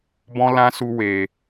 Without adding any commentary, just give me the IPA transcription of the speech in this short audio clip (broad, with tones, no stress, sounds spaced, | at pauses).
b ɔ̃˦ l ã˦ s u˧ w e˨